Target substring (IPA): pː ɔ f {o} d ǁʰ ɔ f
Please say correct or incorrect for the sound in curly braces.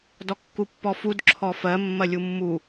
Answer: incorrect